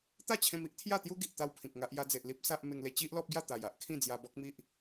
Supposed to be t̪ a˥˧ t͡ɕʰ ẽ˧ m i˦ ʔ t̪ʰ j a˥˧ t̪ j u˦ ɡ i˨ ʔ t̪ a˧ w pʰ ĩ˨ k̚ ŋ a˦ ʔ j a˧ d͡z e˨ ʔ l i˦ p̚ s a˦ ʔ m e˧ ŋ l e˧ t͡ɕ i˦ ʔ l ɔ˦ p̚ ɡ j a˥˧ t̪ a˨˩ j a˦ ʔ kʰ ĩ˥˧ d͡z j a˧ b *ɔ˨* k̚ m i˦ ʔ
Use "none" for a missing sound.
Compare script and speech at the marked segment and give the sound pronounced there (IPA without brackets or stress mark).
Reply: ɔ˦